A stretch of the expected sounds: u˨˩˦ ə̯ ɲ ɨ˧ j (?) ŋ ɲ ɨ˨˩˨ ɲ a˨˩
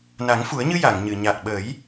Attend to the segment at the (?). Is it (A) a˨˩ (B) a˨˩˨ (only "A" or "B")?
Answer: B